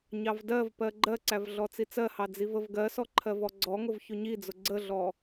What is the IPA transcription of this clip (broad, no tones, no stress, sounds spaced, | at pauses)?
ɲ ɑ v d ɜ v p ɜ ɡ͡ǃ ɜ ǀ æ v ɮ ɔ t͡s i t͡s ɜ h ɑ d͡z i v ə v ɡ ɜ s ɔ ǃʰ ɜ v ɔ ɡ͡ǀ ɔ ŋ ʊ v ç ʊ ɲ i d͡z ʊ ɡ͡ǀ ə ɮ ɔ